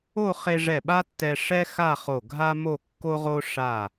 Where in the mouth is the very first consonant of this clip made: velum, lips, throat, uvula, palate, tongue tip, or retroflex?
uvula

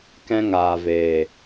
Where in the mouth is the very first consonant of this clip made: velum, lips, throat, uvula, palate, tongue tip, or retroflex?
velum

